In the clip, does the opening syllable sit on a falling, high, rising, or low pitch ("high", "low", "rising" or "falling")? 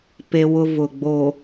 high